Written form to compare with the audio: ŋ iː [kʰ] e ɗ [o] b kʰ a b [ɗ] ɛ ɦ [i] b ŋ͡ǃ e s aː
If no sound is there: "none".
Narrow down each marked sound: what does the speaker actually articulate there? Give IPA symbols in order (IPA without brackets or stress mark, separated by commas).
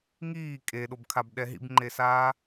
kʼ, o, ɗ, ḭ